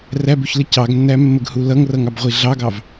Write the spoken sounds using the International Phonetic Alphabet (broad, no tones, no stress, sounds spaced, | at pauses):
r æ b u ç l ə c ɑ ɡ nː æ mː ə ɡ h u l ʌ ŋ r ʌ ŋ ɑ b ʁʷ i ɮ ɑ ɡ ɑ v